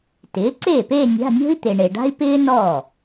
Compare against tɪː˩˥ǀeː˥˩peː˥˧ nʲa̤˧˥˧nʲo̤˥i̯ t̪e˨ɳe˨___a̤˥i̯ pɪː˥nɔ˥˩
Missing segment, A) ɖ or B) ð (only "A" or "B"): A